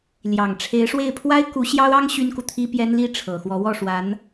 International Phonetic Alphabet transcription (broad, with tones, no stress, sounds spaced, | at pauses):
l j ɑ˨˩ ŋ ʈ͡ʂʰ e˧˥ ɪ̯ ʂ w e˥˩ ɪ̯ pʰ w a˥ ɪ̯ k u˧˥ ɕ j ɑ˥ ʊ̯ ɑ˥ ŋ ɕ y˥ n k u˨ t̪ʰ i˥ p j ɛ˥ n l i˥˩ ʈ͡ʂʰ ɤ˨˩ x w ɔ˧˥ w ɔ˥˩ ʂ w a˧˥ n